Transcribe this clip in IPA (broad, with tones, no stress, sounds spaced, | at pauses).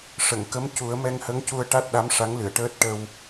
ʂ ə˨˩˨ ŋ k ə˧˥ m c u˨˩˦ ə̯ m ɛ˧ ŋ h ə˧˥ ŋ c u˧ ə̯ ʈ a˦˥ t̚ ɗ a˧˥ m ʂ a˧˥ ŋ l ɨ˨˩˨ ə̯ ʈ əː˦˥ t̚ ʈ ə˧ w